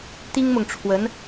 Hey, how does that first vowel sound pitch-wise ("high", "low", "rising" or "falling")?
high